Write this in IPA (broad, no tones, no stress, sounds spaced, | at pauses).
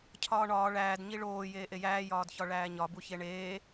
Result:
cʰ ɒː ɳ ɒː ɭ æː d ɲ i ɭ oː j eː ʔ e j æː j ɒː d ç ɒ ɭ æː ɲ ɒ b u ç e ɳ eː